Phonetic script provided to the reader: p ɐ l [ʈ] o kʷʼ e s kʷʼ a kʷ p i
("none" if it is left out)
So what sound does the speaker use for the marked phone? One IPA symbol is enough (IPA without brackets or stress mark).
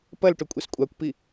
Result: ʈ